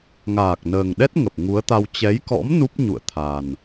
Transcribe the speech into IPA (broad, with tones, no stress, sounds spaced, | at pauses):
ŋ aː˨˩ k̚ n əː˨˩ ŋ ɗ ɛ˦˥ t̚ ŋ ə˨˩ p̚ ŋ u˨˦ ə̯ t̪ a˧ w t͡ɕ ɛ˨˦ j k ɔ̰˧˥ m n u˦˥ p̚ ɲ ṵ˧˨ ə̯ t̪ʰ a˨˩ n